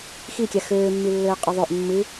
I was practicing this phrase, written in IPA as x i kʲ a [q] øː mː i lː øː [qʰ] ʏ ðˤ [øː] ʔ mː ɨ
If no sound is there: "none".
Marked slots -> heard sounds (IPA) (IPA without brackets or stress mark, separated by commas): x, qʼ, ø